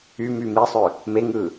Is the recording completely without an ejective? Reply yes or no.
yes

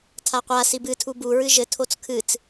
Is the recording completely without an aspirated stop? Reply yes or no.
no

